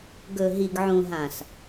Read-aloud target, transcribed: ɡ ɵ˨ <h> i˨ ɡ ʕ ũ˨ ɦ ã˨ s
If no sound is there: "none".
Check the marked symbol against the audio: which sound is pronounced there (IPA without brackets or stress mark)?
ɦ